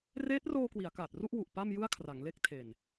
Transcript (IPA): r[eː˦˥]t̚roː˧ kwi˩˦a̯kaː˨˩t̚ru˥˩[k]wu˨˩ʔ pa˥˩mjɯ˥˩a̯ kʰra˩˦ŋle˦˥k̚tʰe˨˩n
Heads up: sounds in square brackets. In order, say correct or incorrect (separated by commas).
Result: correct, incorrect